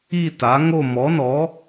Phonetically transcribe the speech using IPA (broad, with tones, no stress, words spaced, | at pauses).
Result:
i˥˧ta˨˥ŋo˥˧ mɔ˨˥nɔ˨˥